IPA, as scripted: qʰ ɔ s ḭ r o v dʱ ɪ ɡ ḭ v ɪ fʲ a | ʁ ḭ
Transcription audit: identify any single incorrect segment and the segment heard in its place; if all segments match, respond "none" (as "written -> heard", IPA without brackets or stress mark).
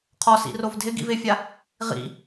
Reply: none